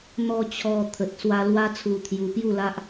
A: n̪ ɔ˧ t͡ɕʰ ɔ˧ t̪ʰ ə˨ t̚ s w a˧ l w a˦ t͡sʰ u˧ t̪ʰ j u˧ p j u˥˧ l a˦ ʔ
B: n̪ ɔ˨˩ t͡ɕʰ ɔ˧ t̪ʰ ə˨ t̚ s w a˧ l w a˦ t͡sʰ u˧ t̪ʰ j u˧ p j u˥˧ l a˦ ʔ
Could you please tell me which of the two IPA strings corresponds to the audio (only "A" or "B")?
A